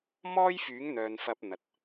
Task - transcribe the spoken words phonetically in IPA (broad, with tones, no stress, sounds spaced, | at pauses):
m ɔː˥ j f yː˨˥ ŋ n̪ œː˨ n f ɐ˧ p̚ n̪ ɐ˨ t̚